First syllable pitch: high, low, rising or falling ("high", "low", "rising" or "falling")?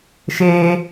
high